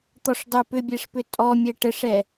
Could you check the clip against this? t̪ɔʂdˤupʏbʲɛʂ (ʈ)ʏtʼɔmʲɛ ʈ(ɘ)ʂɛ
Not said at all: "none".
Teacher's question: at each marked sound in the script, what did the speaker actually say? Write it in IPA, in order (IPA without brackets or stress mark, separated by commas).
p, ɘ